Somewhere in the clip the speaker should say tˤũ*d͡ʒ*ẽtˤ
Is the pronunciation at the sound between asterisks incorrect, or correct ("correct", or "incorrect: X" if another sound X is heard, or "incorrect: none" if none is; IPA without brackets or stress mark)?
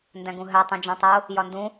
correct